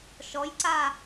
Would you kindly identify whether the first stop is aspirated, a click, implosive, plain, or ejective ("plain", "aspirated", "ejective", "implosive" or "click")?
click